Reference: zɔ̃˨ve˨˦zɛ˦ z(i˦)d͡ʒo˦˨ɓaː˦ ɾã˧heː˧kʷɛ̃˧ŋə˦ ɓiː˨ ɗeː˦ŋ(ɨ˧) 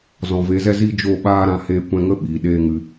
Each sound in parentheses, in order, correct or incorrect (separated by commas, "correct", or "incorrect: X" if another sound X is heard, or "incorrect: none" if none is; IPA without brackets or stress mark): correct, correct